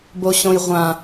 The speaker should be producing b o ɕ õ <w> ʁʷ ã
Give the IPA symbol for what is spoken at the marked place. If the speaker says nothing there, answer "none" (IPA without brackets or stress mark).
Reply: j